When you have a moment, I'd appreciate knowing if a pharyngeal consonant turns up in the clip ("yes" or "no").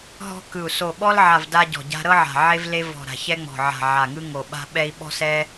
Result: yes